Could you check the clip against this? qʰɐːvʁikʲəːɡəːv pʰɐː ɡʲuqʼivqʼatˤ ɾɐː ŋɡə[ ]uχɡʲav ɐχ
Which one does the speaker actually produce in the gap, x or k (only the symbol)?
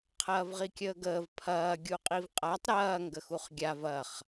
x